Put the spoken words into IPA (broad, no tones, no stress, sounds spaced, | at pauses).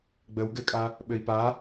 ɡ͡b ə w ɡ ɘ kʼ a | ɓ ɘ i̯ p a